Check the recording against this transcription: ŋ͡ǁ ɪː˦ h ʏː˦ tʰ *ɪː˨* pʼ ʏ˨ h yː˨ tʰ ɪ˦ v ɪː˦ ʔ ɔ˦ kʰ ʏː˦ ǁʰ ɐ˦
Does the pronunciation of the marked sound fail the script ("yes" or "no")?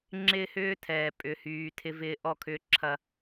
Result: yes